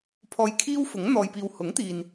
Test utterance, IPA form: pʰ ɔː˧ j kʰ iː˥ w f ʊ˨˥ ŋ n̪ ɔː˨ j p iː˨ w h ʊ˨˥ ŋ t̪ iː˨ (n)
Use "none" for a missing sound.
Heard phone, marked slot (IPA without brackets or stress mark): n